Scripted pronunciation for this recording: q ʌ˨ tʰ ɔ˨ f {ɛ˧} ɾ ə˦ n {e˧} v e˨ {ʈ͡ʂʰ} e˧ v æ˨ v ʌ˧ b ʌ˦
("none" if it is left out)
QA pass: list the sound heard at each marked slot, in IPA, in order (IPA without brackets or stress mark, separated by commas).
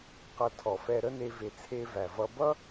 ɛ˧, e˧, t͡sʰ